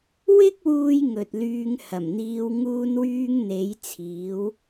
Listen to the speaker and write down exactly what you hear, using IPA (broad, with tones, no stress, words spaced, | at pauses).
wɪ˥k̚wuː˧j ŋɵ˨t̚lyː˧ŋhɐ˨˩mn̪iː˧w ŋuː˧nwyː˧ŋn̪e˨˧jt͡sʰiː˨˧w